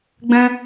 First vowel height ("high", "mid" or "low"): mid